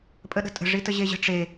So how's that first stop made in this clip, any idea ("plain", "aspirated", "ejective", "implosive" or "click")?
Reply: ejective